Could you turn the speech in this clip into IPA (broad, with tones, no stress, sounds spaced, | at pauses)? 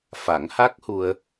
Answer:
f a˨˩˦ ŋ h a˦˥ k̚ h u˧ ə̯